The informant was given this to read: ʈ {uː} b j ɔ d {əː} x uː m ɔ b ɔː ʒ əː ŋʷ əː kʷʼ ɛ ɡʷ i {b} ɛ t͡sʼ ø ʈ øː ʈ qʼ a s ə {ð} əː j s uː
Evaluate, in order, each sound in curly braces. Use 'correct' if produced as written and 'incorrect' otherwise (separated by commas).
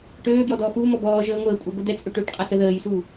incorrect, incorrect, incorrect, correct